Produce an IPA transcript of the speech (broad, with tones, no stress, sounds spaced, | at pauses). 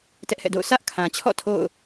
t ɛ˦ ʔ h ɛ̰˦˨ d o̰˦˨ ʊ̯ sʰ ä˦ ʔ kʰ ã˨ t͡ɕʰ ɔ̰˦˨ tʰ o̰˦˨ ʊ̯